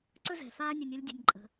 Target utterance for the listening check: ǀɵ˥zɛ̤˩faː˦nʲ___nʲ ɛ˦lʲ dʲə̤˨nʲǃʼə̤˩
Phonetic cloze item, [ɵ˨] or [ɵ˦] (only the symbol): ɵ˨